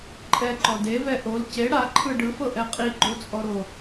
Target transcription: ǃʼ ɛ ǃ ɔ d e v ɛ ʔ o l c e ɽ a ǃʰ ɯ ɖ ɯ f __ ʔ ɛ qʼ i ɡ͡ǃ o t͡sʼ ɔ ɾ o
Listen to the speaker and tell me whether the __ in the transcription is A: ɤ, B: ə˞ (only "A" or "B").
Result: A